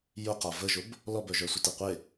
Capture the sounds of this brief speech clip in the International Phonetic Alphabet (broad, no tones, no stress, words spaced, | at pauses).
jʊqa vəʒʊb | lɔbœʒœsʷə teqʷe